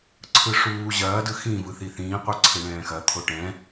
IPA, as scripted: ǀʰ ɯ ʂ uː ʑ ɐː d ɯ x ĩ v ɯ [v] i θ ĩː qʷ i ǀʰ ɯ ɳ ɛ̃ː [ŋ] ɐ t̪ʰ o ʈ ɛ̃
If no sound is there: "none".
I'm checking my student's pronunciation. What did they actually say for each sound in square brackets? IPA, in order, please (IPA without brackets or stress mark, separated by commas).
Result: θ, x